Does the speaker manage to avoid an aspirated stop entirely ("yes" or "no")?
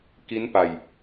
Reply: yes